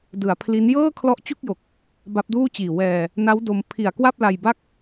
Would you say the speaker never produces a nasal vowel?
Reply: yes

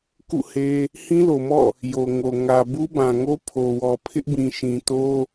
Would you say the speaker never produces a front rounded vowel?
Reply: yes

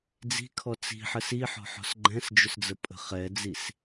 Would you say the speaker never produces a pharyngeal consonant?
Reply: no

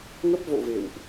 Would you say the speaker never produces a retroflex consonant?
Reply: yes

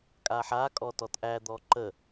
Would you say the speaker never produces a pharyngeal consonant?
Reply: no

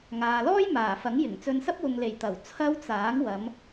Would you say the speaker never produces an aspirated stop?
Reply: no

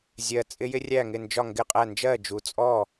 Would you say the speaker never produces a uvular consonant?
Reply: no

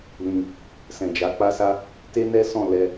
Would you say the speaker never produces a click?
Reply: yes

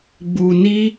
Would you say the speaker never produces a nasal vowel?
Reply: yes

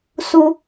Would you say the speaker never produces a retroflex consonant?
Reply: yes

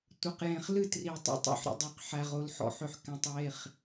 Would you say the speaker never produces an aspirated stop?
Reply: yes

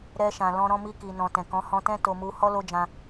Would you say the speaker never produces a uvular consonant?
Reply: yes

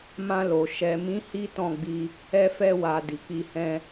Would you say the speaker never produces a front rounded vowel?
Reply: yes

